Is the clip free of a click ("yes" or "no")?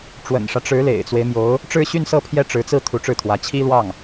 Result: yes